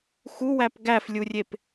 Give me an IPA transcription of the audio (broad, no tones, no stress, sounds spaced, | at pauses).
x u w æ p ɡ æ f lʲ u rʲ e p